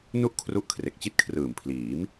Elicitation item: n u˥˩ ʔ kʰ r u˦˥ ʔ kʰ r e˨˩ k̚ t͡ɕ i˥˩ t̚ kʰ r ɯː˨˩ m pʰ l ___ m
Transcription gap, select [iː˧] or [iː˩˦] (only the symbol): iː˩˦